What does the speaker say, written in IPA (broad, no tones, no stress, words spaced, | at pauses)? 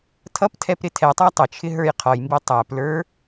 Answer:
tʰʌp tʰɛpɾɪtʰɛtˤæ tˤə t͡ʃʰɪɦə˞jqʰɔjmbi tˤæplə˞